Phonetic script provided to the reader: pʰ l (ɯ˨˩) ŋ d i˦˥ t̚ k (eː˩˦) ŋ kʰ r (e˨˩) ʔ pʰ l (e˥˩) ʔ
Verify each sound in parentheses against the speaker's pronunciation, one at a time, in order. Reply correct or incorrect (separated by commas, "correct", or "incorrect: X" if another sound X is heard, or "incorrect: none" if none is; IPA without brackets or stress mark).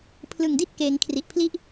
correct, correct, incorrect: i˨˩, incorrect: i˥˩